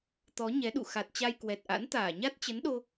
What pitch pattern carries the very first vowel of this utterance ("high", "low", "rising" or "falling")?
rising